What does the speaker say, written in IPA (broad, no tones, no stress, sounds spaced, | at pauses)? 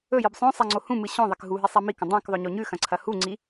ɵ j ɨ b sˤ õ sˤ a ŋ͡ǀ o h ũ m ɨ ɕ õ ðˤ e k ɦ u ɦ i sˤ a m i k ɐ̃ dˤ ã k ðˤ ɵ ɲ o ɲ ʉ x ɐ̃ ǀʰ ɐ h u ŋ͡ǀ i